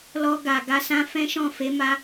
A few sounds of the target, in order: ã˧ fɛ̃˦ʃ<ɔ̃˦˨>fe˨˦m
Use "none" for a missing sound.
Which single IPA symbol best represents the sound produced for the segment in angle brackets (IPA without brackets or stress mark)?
ɔ̃˦˨